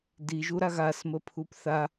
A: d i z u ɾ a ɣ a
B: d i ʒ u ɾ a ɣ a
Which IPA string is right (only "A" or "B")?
B